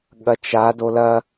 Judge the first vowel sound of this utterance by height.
low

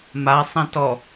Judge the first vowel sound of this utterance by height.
low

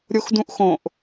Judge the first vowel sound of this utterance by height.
mid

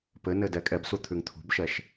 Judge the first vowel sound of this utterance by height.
mid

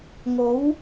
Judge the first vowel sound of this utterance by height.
mid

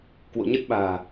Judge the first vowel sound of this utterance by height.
mid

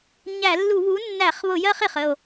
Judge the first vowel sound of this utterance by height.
low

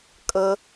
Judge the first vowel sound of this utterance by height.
mid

